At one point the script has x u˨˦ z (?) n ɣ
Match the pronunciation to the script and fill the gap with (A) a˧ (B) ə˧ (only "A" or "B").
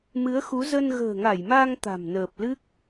B